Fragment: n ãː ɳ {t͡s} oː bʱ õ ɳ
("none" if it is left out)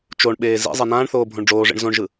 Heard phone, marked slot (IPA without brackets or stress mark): θ